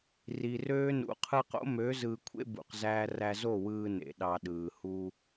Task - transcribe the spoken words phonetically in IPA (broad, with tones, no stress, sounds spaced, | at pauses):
r i˨ r øː˦ n ṵ˨ qʰ ɯ˧ q o̰˦ m ø˨˦ z ɯː˧ kʷʰ ḛ˦ b ṵ˨ q z æː˧ r æ˧ z o˦˨ w ɯː˧ n ḛ˨ ɗ ɑ˧ ɗ ɯː˨ h u˧